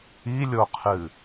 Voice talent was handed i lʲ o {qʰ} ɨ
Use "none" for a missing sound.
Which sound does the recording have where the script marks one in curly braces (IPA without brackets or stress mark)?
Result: qʰ